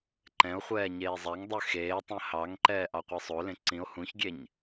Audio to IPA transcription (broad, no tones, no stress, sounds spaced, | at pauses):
ǃ ɛ̃ o̯ χʷ ɛː ɲ eː zˤ æ ŋ dˤ ʉ x eː tˤ ẽ h ɑ ŋ ǃ ɛː ʔ ɑ qʷ i sˤ o l ẽ ǀ ĩ o̯ h ũ ç ɡʲ e ɲ